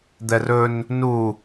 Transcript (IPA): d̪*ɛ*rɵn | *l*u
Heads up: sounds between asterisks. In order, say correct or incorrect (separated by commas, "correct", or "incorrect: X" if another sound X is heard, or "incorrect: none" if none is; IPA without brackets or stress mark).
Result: correct, incorrect: n